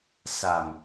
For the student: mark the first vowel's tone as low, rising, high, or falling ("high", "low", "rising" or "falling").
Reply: low